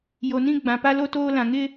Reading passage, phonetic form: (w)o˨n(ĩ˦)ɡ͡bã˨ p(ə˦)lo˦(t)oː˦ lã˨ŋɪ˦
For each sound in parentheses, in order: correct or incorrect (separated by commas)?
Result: incorrect, correct, incorrect, correct